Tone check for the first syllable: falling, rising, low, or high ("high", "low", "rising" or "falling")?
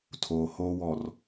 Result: low